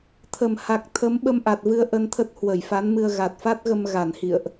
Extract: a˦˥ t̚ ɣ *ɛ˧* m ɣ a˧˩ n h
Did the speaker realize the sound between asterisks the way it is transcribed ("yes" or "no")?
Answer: no